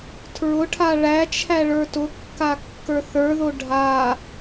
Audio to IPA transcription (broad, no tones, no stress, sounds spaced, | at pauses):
tʰ ɹ ʊ ʈʰ a ɭ æ t͡ʃʰ æ ɭ ə˞ t ʊ kː a kː ə˞ θ ə˞ ð o ɖʱ a